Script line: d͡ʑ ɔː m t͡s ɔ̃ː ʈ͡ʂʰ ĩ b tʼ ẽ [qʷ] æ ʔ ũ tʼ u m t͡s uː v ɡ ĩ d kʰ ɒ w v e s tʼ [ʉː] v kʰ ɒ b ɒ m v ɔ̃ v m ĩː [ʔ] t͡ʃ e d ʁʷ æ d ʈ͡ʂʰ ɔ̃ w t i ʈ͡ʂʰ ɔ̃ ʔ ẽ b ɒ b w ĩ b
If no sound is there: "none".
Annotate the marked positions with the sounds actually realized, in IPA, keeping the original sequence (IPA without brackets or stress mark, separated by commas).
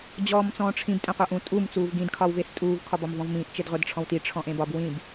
qʷ, uː, ʔ